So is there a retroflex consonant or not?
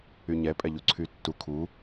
no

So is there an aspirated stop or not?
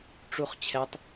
yes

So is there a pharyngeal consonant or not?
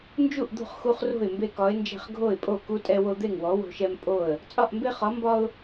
no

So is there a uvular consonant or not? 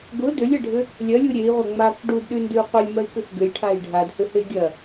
yes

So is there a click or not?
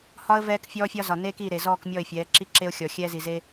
yes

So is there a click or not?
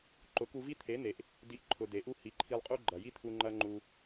yes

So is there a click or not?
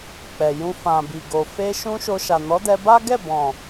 no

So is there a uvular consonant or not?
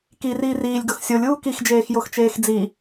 no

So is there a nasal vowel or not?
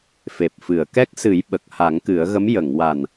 no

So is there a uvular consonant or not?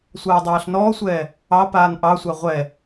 yes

